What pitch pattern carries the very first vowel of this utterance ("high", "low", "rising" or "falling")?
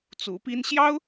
rising